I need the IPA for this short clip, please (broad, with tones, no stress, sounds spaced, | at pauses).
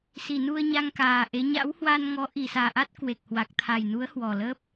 s i˧˩ n u˧ ə̯ ɲ a˧ ŋ k aː˨˩ ʔ e˨˦ ɲ a̰˧˥ w h w aː˧ n ŋ ɔ˨˦ ʔ i˨˩ s aː˨˩ ʔ a˦˥ t̚ k w e˨˩ k̚ h w a˨˩ k̚ t̪ʰ a˨˩ j n u˨˦ ə̯ h w ɔ˨˩ l əː˦˥ p̚